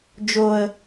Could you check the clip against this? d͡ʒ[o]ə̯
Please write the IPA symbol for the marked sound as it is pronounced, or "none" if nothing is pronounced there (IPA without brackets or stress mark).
o